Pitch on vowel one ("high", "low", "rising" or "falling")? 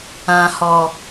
low